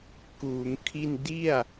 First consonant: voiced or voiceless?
voiceless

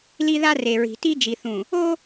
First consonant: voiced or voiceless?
voiced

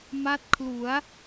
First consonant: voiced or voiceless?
voiced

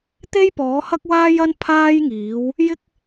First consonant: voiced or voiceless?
voiceless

